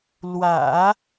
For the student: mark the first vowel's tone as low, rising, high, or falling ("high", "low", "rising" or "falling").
low